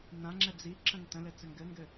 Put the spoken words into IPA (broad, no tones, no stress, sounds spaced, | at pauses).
n ã ŋ͡ǁ ɛ d͡z i ǁ ə̃ ŋ t ə̃ l ɘ t͡s ɘ ŋ ɡ ɘ ŋ ɡ ɘ